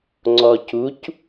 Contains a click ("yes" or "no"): yes